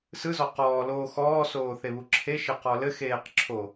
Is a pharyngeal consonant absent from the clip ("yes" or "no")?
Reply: yes